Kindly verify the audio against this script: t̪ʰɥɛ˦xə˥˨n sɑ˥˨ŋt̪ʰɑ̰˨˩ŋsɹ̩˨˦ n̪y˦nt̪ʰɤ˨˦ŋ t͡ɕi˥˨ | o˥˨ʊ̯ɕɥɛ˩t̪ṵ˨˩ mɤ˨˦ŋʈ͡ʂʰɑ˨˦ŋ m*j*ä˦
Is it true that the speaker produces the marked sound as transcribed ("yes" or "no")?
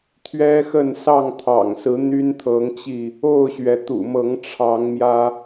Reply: yes